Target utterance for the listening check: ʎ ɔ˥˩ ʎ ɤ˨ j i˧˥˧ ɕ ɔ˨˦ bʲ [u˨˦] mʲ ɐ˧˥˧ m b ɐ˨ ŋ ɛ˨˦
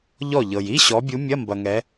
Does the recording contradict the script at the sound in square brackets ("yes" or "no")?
no